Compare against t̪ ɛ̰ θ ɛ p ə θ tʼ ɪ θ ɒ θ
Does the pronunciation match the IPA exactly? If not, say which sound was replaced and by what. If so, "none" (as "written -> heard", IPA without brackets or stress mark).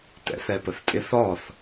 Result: none